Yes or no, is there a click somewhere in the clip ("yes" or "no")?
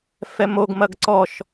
yes